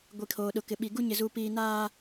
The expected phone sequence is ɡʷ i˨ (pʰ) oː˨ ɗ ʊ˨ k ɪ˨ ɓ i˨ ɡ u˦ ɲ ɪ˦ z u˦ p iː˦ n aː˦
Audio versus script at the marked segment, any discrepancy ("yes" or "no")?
yes